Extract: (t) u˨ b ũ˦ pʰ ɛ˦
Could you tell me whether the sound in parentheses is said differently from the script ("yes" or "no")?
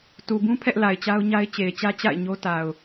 no